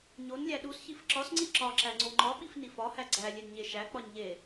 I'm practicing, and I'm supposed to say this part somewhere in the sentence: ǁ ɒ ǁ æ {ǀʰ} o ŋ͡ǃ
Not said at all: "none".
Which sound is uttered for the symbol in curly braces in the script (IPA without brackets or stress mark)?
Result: ŋ͡ǀ